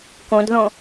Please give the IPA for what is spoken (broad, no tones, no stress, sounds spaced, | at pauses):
k õ d ð õ